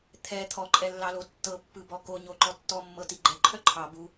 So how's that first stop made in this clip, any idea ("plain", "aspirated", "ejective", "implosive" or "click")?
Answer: aspirated